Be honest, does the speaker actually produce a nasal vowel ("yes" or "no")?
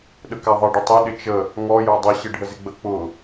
no